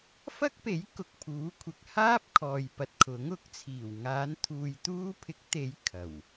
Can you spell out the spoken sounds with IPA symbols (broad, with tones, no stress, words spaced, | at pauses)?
fɐ˥k̚pe˨˥j kʊ˨k̚pʰuː˨˥kʷʰɪ˨k̚ haː˥p̚kʰɔː˨jpɐ˨t̚ kʰʊ˨˥ŋʊ˨˥k̚t͡sʰiː˨˩w ŋaː˨˧n t̪ʰuː˨jt̪uː˧pʰɪ˨˥k̚t̪e˨˧j kʰɐ˨˩w